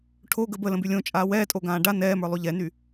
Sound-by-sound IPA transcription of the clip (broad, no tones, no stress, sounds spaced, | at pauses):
ʈʰ o ɡ ə b ə l ə̃ b y lʲ õ t͡ʃʼ aː w ɛː tʼ o ɡ ãː ɖ a n ɛː m ə˞ lˠ y ʎ ɛ n y